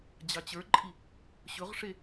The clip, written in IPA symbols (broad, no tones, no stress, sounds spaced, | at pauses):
d͡ʑ ɑ t͡ɕ ə˞ ǃʼ i | ɕ ɵ ʁ ʂ e